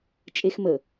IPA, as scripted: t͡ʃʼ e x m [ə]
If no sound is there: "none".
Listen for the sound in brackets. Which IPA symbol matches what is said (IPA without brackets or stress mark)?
ə